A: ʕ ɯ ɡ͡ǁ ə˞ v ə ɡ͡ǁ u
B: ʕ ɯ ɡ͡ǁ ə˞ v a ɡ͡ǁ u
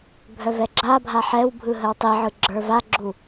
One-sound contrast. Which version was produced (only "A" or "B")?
B